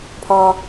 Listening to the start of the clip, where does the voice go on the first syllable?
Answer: low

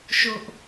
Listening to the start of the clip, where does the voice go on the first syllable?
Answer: high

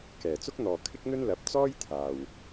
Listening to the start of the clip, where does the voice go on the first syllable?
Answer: low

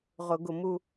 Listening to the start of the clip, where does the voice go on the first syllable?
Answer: high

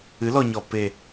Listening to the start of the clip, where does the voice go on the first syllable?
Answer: rising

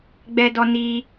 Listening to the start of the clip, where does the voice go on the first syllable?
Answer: high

